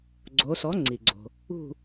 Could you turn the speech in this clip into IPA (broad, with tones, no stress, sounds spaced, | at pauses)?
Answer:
ɡ͡ǀ o˩˧ s ɔ˩˥ ŋ͡ǀ i˩ ɡ͡ǀ o̤˩ | ṳ˦˨